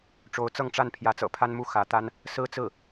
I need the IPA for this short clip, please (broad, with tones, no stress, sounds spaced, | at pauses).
ʈ͡ʂ o˧˥ ʊ̯ t͡s ɤ˥˧ ŋ ʈ͡ʂ a˥˩ n pʰ j ä˧˥ t͡s ɤ̰˨˩ pʰ a˥ n m u˥˩ x ä˧˥ t̪ a˥ n | s ɹ̩˥ t͡s ɹ̩˥˩